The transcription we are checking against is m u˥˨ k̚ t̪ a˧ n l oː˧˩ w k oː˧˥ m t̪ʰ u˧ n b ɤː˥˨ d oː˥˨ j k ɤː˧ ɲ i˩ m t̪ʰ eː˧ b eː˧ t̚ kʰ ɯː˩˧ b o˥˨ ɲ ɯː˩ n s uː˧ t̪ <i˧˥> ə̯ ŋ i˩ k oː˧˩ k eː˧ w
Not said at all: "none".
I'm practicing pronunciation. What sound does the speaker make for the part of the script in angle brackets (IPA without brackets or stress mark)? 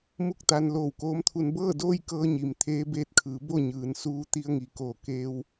i˧